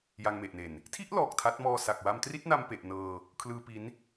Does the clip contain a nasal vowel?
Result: no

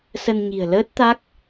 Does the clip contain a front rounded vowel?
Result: no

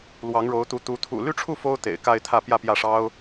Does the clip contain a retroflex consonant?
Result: yes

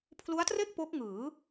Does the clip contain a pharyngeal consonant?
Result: no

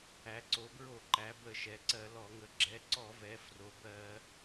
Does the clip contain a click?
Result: yes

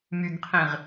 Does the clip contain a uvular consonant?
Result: yes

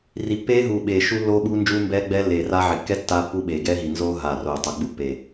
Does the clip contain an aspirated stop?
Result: no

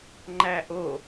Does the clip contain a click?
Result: yes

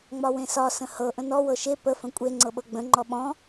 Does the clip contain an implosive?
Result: yes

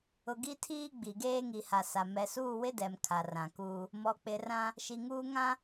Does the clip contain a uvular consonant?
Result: no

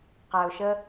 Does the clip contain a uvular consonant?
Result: yes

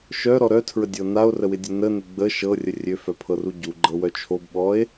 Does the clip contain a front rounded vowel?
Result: yes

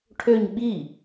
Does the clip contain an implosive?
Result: yes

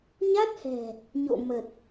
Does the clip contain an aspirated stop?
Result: no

